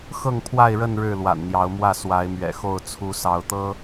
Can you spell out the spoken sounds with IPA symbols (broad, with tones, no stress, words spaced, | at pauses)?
xɤ˥˨ŋpʰwa˥˨ɪ̯ɻə˥˨n ɻɻ̩˥˨lwa̰˨˩nn̪jɑ˨˦ʊ̯mwä˥˨ swa˨˦ɪ̯mɥɛ̰˨˩xo˥˨ʊ̯ t͡sʰu˨˦ sɑ˨˦ʊ̯t̪ɤ˦